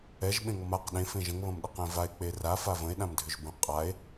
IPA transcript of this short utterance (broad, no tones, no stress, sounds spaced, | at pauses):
ɛ ʒ ɓ ẽ ŋ ɔ m a q ɗ ẽ f ẽ ʒ ə̃ ŋ β ɐ̃ m ɗ ə q ẽ v a e̯ k͡p e r a f a v ə̃ e̯ ɗ ã m dʱ ʏ ʒ b ə̃ qʼ a e̯